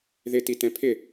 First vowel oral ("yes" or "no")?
yes